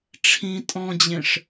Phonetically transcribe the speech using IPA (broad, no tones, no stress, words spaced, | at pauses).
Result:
ʈ͡ʂʰĩ tʼɔ̃d͡ʑẽʂ